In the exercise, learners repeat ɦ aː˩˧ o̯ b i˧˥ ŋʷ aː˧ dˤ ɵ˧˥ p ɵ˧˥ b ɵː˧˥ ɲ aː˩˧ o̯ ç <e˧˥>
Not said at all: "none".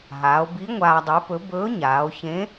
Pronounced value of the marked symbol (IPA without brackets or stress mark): ẽ˧˥